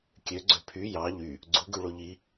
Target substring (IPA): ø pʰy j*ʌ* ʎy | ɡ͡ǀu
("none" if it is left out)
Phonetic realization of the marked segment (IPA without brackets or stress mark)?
ɑ